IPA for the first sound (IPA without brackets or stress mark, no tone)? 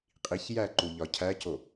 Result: qʼ